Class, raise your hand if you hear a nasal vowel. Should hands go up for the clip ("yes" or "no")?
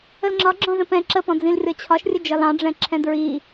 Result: yes